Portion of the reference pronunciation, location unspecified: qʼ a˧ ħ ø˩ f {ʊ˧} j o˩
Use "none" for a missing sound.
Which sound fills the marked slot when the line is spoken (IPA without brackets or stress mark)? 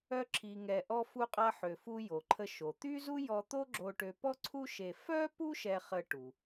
u˧